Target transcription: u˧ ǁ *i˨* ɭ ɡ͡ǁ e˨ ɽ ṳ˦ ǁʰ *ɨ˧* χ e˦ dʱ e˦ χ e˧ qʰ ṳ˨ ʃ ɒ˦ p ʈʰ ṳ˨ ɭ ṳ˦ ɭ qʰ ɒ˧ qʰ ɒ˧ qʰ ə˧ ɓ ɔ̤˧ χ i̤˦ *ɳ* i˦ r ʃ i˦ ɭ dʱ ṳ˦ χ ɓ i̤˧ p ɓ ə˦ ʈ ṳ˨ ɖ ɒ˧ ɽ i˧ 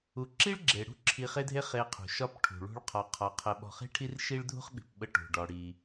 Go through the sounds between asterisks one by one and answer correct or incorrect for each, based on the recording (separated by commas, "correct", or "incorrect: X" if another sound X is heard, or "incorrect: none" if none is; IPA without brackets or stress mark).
incorrect: i˦, incorrect: i˧, incorrect: ʈʰ